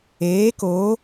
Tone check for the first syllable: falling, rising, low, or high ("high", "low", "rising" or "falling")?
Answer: rising